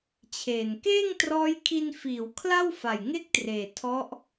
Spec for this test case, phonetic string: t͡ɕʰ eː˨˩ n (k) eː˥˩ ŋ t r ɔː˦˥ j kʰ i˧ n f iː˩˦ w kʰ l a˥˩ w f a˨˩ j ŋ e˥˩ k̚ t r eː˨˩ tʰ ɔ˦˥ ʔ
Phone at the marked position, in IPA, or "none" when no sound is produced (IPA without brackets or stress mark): k